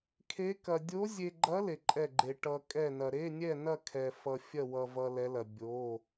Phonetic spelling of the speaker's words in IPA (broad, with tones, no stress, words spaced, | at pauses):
kʰe˧˥kɐ˧ dʲo˧˥zʲe˧ɡ͡ǃɐ˧˥ le˧ǃʼɛ˥˨ɡ͡ǃe˧ ʈʌ˧ kʼɛ˥˨nɐ˧ ɾe˧˥˧nʲɛ˥˨nɐ˥˨ kʰɛ˧fʌ˧ fʲɐ˥˨wʌ˧vʌ˧ lɛ˧˥lɐ˧ bʲo˧˥˧